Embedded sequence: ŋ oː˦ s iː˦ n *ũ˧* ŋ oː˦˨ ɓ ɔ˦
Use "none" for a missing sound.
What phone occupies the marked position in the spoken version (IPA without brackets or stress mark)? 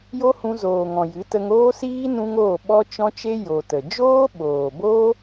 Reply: ũ˦